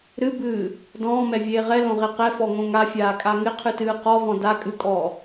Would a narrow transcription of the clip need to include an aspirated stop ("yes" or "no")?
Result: yes